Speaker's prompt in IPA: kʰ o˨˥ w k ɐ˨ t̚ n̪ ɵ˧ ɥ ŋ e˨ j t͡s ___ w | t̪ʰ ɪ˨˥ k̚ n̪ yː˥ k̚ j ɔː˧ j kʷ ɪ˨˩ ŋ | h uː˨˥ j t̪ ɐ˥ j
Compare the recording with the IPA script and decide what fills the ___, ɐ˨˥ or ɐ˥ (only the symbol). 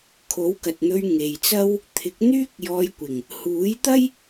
ɐ˥